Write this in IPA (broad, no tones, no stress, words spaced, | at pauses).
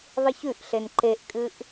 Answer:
ðˤɨçʉʔɬen ǃeʔkʼɨʔ